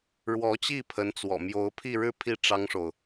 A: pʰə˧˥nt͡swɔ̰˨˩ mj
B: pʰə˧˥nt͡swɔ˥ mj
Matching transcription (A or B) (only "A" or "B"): A